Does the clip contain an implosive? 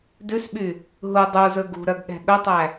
yes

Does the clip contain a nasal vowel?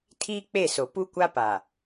no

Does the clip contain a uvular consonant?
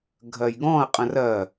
yes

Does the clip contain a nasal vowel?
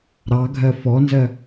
no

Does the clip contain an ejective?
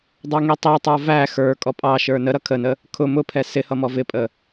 yes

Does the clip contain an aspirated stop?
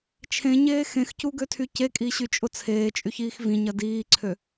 yes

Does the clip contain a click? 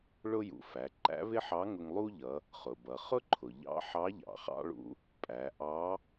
yes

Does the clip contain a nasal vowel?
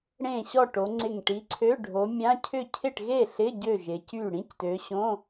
yes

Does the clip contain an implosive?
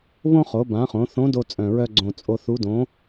no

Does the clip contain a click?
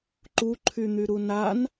yes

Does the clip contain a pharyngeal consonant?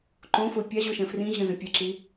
no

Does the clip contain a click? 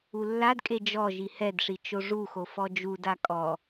no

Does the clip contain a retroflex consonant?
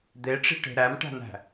yes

